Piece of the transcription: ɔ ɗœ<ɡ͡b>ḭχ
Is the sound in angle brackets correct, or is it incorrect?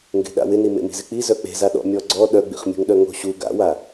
correct